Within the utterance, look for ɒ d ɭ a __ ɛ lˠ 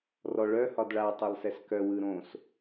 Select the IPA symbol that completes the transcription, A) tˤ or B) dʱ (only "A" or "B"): A